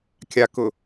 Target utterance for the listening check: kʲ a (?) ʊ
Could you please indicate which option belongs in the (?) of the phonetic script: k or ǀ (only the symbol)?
k